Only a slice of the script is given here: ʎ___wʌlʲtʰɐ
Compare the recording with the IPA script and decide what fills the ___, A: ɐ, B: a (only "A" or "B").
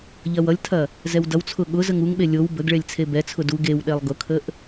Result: A